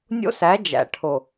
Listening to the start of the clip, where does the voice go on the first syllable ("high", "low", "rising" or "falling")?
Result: high